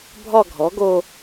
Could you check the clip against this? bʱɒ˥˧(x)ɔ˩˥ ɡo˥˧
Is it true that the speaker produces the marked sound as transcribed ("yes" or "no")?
no